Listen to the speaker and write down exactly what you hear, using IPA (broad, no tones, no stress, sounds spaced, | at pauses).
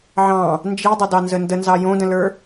ʕ ɑ̃ | n d͡ʒ i dˤ ə d ɑ n z ə n d ə n z ɑ j õ d ə̃ l ə˞